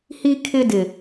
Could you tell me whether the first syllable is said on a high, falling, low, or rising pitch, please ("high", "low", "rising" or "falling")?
high